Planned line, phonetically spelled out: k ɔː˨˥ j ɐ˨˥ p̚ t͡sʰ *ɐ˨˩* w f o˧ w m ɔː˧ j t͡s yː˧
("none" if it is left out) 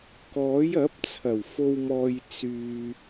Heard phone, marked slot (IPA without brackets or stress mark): ɐ˨˩